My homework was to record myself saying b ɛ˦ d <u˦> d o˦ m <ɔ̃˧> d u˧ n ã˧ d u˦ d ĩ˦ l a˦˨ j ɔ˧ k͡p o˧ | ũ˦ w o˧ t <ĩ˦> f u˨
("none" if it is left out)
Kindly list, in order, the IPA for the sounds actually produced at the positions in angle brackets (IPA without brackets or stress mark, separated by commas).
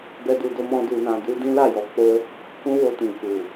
u˧, ɔ̃˦, ĩ˨